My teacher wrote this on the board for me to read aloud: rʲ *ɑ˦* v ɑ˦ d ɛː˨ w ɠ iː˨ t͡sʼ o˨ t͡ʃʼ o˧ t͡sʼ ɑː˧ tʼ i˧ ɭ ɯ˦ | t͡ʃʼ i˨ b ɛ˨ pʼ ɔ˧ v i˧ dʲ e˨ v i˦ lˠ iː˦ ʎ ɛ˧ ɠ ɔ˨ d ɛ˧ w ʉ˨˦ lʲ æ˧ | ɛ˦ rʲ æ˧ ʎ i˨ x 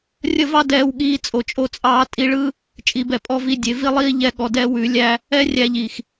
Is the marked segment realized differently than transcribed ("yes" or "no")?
yes